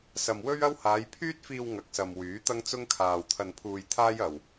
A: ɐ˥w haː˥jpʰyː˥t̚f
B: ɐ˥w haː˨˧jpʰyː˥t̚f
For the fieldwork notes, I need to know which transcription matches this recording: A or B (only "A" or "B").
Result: B